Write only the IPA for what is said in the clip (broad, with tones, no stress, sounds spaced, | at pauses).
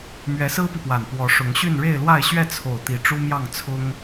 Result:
m ɥ ɛ˧˥ s ɹ̩˥ p i˨ p w a˨˩ n p w ɔ˧˥ ʂ ʊ˧˥ ŋ ɕ y˥˧ n ɻ e˥˧ ɪ̯ l w a˥˧ ɪ̯ ɕ ɥ ɛ˥˩ t͡sʰ o˨˩ ʊ̯ t̪ i˧˥ ʈ͡ʂ u˥ m j ɑ˥˩ ŋ t͡sʰ ʊ˥ ŋ